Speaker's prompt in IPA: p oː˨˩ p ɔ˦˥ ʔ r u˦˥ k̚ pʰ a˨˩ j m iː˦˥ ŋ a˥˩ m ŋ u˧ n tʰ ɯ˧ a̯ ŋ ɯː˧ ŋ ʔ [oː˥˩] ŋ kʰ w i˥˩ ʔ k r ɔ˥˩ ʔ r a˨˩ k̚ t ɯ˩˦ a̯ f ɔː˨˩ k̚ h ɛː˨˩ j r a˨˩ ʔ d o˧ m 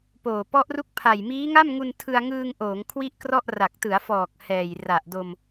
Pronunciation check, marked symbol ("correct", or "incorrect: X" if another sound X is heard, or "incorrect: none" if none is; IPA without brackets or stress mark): incorrect: oː˩˦